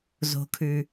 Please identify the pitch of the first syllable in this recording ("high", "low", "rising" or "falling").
low